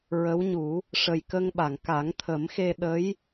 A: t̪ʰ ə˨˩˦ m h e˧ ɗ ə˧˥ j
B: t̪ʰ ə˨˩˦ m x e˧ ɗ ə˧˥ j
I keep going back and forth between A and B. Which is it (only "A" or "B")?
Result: B